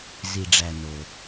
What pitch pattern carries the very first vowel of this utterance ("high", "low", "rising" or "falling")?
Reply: low